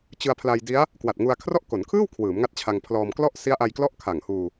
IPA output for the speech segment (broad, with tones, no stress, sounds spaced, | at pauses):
t͡ɕ ɯ˧ a̯ pʰ l a˧ j d i˦˥ a̯ | k w a˨˩ t̚ ŋ u˧ a̯ kʰ r ɔ˥˩ ʔ k o˩˦ n kʰ ɯː˥˩ w kʰ w ɯː˩˦ m ŋ a˦˥ t̚ t͡ɕʰ a˧ ŋ pʰ l ɔː˧ m k l ɔ˥˩ ʔ s i˦˥ a̯ ʔ a˧ j k l ɔ˦˥ ʔ kʰ a˨˩ ŋ h uː˧